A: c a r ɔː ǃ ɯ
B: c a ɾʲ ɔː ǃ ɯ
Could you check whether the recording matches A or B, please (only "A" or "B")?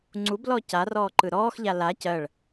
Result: A